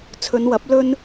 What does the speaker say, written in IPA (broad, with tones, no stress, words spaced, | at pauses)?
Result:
t͡sʰɵ˨˧nwɐ˨˥p̚ lɵ˥n